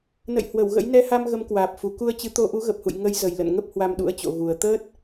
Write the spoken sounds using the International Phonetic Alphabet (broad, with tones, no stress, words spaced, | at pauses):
nə̰˧˨j hwə˧˩wɣə̰˧˥j nɛ˧ha˧m ɣə˨˦mkwaː˨˩p̚fu˨˩ ku˧ə̯t͡ɕɨ˨˦ t̪o˧ʔu˨˦ɣə˨˩p̚hṵ˧˨j ŋə˨˦j zə˨˩jlə̰˧˨n ŋə˦˥p̚ hwa˧mɗṵ˧˥ə̯t͡ɕo̰˧˨ ɣu˨˩ə̯ t̪əː˦˥t̚